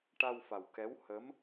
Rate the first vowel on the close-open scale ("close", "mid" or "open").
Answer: open